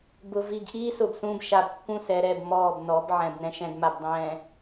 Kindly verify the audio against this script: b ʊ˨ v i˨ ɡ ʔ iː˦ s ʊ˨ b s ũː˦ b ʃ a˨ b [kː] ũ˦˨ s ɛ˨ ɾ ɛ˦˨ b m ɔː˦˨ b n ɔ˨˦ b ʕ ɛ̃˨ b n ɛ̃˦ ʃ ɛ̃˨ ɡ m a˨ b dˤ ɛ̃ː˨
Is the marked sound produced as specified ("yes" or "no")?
yes